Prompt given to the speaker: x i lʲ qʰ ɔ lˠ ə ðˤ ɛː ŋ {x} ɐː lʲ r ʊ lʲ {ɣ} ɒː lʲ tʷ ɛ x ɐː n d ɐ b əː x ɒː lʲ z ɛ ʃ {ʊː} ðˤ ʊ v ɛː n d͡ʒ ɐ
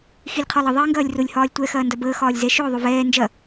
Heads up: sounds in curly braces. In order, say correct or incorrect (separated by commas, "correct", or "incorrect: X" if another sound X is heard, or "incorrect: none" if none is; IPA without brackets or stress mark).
incorrect: ɡ, incorrect: h, correct